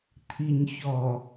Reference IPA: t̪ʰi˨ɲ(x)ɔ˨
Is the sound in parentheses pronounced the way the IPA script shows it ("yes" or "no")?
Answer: no